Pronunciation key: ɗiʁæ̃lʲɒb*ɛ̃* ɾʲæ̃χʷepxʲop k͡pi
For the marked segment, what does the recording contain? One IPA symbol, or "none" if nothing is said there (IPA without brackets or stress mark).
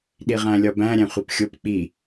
æ̃